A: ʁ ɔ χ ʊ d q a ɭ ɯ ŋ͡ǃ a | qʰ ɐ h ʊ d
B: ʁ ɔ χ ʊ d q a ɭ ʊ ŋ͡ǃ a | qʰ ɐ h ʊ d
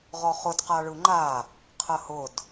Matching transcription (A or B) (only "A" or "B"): A